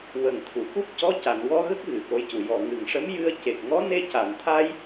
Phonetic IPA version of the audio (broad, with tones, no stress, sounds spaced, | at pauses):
w ə˨˩ ŋ t̪ʰ u˨˩˨ k u˦˥ p̚ c ɔ˧˥ c a˨˩˨ n w ɔ˧ ɣ ə˦˥ k̚ ɣ ɨ˨˩ k o˧˥ j c u˨˩ j ɔ˨˩ ŋ ɨ˨˩ ŋ ʂ ə˧˥ m j ɨ˧ ə̯ c e˨˩ k̚ ŋ ɔ˧˥ n e˧ c a˨˩˨ n t̪ʰ a˧ j